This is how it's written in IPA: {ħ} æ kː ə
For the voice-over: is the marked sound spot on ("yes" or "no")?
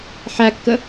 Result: yes